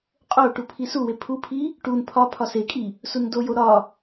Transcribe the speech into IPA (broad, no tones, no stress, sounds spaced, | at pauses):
qʼ o ʈ u pʰ i s u w e pʰ u pʰ i | ʈ u n pʰ ɒ pʰ ɒ s e kʼ i | s u n d o j o ɾ ɒ